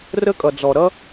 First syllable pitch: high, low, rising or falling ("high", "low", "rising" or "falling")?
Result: high